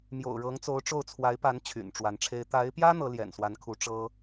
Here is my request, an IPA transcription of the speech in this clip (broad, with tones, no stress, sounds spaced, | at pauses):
m j o̰˨˩ ʊ̯ ɻ ɤ˧˥ ŋ t͡s o˧˥ ʊ̯ ʈ͡ʂ o˥˩ ʊ̯ t͡sʰ w a˧˥ ɪ̯ p a˧˥ n t͡ɕʰ y̰˨˩ n ʈ͡ʂ w a˧˥ n ʈ͡ʂʰ e˥ ɪ̯ t̪ a˧˥ ɪ̯ p j ä˥ n̪ ɤ˧˥ l j ɛ̰˨˩ n s w a˧˥ n kʰ u˧˥ ʈ͡ʂ ɤ˥